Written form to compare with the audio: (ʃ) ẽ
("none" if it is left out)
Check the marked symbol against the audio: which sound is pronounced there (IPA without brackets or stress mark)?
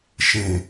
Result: ʃ